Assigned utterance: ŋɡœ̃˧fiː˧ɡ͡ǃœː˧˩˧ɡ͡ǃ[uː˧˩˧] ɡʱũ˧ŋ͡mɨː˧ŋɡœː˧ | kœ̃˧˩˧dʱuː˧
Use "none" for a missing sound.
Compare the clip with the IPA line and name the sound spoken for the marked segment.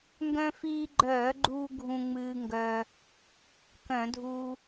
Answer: uː˧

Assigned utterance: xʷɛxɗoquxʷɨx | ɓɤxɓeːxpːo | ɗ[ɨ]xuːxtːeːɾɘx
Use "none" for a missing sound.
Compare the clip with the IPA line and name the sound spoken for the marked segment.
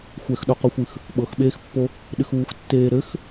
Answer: ɨ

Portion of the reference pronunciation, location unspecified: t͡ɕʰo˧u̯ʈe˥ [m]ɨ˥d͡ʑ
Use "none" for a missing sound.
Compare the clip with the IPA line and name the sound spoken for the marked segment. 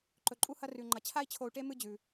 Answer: m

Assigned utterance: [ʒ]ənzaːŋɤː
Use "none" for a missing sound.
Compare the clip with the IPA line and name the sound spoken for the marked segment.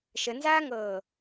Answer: ʃ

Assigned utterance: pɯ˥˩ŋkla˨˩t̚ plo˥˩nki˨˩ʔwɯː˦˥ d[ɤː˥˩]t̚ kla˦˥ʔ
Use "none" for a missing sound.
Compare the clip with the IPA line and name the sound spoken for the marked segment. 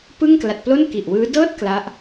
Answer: ɤː˥˩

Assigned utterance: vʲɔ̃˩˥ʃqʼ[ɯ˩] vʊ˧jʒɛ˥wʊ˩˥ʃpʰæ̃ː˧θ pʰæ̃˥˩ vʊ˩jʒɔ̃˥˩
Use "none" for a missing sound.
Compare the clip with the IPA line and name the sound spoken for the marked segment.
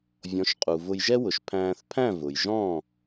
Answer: u˩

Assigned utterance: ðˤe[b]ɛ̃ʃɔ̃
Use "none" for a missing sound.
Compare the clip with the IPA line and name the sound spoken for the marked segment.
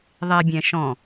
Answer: bʲ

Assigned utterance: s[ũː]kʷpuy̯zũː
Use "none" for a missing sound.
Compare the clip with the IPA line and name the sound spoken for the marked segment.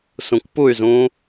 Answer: ũ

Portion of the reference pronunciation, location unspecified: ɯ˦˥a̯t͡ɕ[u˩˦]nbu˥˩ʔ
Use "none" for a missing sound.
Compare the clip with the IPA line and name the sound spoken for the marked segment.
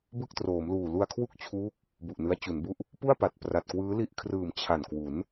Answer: u˩˦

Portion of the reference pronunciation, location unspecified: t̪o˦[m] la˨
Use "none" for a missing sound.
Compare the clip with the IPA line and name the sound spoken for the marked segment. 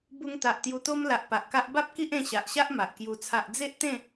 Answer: m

